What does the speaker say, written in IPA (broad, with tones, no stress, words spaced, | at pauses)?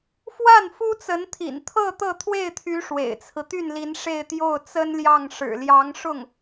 fwa˥˩n fu˥t͡sə˧˥nt̪ʰḭ˨˩n t̪ʰɤ˥˧ t̪ɤ˥˧t̪ʰwe˥˩ɪ̯t̪ʰy˧˥ ʂwḛ˨˩ɪ̯t͡sʰɹ̩˦ t̪y˥˩nli˧˥n ʂe˥˧ɪ̯t̪jo˥˩ʊ̯ t͡sə˥nljɑ˥˩ŋ ʂɻ̩˨˩ljɑ˧˥ŋ ʂʊ˥˩ŋ